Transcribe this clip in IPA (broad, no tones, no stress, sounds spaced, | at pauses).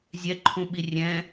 zʲ ɛ ǃʰ ũ ɓ i rʲ ɛ̃